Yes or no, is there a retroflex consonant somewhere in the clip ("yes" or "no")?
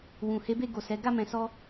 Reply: no